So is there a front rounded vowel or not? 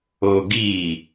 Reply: no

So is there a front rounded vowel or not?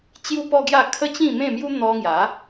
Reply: no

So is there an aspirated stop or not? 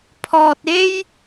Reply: yes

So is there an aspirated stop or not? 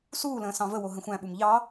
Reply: no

